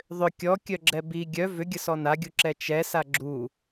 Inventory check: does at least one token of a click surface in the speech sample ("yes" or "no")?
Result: yes